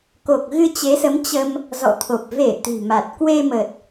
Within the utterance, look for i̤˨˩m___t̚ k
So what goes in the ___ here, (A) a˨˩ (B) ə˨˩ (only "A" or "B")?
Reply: A